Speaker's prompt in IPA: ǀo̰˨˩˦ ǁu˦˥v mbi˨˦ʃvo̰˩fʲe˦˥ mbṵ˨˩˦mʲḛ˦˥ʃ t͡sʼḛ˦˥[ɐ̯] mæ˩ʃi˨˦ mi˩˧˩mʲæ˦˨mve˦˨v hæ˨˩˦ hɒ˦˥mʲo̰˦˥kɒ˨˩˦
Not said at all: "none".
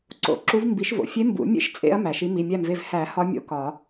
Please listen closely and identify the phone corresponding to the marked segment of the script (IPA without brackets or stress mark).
ɐ̯